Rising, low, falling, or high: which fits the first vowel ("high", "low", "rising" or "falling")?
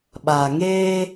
low